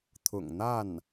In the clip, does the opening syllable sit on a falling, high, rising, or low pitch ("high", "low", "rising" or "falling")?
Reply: low